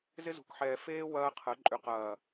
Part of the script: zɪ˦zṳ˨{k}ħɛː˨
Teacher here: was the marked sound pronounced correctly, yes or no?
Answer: yes